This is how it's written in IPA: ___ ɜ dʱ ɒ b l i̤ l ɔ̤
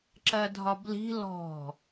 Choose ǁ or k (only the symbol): ǁ